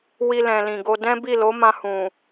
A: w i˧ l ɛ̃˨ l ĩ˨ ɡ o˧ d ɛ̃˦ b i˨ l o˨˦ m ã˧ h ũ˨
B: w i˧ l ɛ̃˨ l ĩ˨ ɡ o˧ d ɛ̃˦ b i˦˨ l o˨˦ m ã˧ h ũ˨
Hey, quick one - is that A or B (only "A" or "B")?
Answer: B